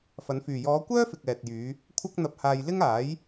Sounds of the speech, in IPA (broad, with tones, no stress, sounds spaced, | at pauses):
f ɐ˨˧ n f yː˨ j ɔː˨˧ kʷ œː˥ f ɪ˨ k̚ ɛː˨ t̚ j yː˨˧ | kʷʰ ɐ˥ k̚ n̪ ɐ˧ p̚ h aː˧ j l ɪ˥ ŋ aː˨˥ j